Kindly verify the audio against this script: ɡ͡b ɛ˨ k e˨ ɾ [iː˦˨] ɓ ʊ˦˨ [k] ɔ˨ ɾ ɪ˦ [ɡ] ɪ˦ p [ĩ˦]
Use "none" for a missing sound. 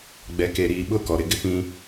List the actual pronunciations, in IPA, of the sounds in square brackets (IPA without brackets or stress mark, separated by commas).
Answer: iː˨, k, ɡ, ĩ˦